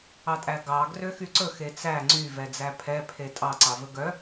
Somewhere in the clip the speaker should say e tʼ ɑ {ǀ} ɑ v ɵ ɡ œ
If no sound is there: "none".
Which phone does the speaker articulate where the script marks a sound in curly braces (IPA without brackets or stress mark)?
ǀ